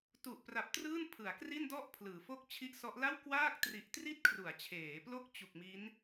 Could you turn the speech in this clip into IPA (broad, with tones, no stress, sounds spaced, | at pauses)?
t u˨˩ ʔ p r a˨˩ p̚ t r ɯː˥˩ n pʰ ɯ˩˦ a̯ k r i˥˩ n d ɔ˥˩ ʔ pʰ l ɯː˩˦ f o˦˥ k̚ t͡ɕʰ i˦˥ ʔ s ɔ˦˥ ʔ l a˥˩ w k w aː˥˩ k̚ t r i˨˩ ʔ t r i˥˩ t̚ kʰ r u˩˦ a̯ t͡ɕʰ eː˩˦ p l o˦˥ k̚ t͡ɕ u˨˩ k̚ m i˦˥ n